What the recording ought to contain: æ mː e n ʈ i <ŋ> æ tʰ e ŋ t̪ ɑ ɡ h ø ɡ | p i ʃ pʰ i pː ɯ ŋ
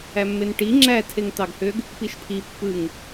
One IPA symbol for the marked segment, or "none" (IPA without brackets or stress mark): ŋ͡ǁ